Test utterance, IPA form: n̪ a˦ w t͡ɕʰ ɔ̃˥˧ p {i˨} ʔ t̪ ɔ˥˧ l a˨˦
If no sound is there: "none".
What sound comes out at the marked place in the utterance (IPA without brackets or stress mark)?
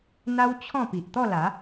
i˨